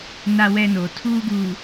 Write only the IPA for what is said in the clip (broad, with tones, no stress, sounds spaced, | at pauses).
n a˦ w ɛ˦ n oː˨ tʰ uː˦ ɡ u˨